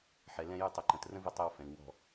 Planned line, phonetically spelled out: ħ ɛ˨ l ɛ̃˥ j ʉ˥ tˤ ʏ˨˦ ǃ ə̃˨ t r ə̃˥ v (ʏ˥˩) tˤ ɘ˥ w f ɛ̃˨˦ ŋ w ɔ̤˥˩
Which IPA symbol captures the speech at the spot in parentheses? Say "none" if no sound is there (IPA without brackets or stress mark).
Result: ʏ˥˩